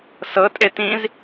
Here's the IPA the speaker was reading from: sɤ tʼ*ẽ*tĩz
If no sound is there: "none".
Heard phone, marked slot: e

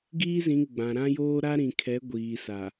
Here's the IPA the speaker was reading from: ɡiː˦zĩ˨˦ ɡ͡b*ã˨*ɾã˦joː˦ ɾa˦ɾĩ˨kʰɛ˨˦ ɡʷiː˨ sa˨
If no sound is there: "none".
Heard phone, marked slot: ã˨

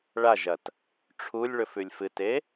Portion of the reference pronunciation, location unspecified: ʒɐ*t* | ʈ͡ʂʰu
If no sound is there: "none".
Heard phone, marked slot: t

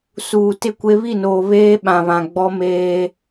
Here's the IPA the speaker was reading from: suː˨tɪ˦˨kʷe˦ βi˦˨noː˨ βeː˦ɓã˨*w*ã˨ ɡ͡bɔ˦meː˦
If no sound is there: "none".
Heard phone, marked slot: β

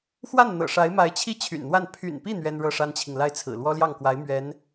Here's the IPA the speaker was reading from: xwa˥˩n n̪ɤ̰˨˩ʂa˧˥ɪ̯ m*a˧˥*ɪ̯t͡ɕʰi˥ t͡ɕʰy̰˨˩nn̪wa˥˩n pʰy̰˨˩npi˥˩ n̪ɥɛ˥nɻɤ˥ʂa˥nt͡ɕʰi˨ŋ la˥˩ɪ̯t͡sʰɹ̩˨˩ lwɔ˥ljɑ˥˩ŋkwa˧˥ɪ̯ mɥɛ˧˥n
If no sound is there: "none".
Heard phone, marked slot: a˧˥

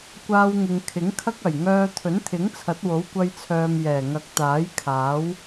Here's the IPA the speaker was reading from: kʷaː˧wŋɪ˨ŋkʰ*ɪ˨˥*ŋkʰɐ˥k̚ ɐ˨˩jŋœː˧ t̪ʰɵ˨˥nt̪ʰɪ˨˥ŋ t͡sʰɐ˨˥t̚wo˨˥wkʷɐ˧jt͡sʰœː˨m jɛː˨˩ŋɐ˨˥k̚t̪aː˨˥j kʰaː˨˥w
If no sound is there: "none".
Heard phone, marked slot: ɪ˨˥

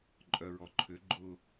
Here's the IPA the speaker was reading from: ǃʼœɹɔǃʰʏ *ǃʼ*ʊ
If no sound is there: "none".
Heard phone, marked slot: ɡ͡ǃ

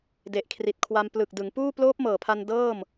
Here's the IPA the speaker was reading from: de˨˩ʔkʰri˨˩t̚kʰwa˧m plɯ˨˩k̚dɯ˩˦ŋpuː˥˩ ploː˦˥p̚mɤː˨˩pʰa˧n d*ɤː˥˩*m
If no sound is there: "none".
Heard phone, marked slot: ɤː˥˩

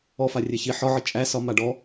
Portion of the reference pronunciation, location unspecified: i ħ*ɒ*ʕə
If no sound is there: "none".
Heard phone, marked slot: ɒ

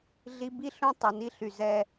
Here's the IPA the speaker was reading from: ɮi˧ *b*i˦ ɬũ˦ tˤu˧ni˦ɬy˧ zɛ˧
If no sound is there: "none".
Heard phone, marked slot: b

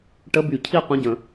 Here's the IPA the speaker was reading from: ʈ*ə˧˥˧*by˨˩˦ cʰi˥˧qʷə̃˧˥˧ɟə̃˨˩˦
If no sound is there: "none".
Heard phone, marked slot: ə˧˥˧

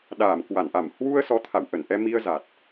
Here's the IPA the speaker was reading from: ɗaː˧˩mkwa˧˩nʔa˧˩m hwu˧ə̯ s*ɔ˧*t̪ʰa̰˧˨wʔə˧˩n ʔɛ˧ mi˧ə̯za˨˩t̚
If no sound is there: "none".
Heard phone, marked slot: ɔ˨˦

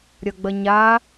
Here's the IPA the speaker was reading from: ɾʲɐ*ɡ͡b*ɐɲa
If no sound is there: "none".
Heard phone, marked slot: ɡ͡b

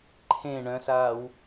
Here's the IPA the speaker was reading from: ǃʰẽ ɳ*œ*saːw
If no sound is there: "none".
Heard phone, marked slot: œ̃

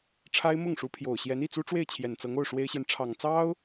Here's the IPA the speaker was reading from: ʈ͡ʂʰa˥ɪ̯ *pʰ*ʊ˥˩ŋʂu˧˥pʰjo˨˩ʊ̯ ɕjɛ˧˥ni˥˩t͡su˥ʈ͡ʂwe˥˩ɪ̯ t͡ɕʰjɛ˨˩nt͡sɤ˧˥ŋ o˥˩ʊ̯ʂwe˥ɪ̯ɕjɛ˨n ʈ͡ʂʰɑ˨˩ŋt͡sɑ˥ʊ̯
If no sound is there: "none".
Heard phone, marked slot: m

